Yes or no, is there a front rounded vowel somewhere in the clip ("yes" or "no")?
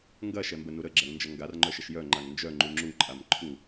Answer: yes